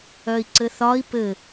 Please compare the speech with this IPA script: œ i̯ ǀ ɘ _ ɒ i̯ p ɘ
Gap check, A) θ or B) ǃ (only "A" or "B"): A